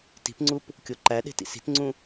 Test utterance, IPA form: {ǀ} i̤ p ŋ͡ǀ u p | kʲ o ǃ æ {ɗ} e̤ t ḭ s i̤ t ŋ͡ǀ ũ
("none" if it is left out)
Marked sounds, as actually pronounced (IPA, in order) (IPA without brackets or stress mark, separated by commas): t, ɗ